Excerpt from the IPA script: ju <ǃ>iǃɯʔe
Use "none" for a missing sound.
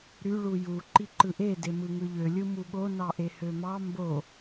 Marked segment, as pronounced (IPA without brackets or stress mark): ǃ